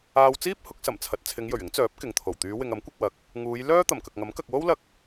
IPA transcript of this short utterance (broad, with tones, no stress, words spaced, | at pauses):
aː˧wt͡siː˥p̚ hʊ˨˥k̚sɐ˨˩mt͡sʰɐ˨t̚ t͡sʰɪ˨˧ŋjɵ˨˩ɥɪ˨˥ŋt͡sœː˨˥p̚ kɪ˨ŋt̪ʰo˨˩w t̪yː˨˧wɪ˨ŋɐ˨˥m kʷɐ˧k̚wɐ˨˥k̚ | ŋuː˨˧j lœː˥ t̪ɐ˨˩mkɐ˨k̚ŋɐ˨˥m kɐ˨k̚wo˥wlɐ˧k̚